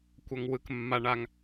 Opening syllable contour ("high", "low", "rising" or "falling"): low